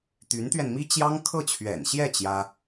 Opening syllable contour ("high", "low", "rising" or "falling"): rising